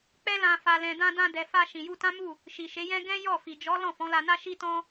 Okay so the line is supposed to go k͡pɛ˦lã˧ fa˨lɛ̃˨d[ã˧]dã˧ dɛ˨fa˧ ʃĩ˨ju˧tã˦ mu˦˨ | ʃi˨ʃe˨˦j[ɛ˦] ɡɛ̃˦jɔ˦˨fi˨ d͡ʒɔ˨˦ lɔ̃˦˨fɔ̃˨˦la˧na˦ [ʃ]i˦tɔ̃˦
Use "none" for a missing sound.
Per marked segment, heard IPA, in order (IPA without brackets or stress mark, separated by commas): ã˧, ɛ̃˦, ʃ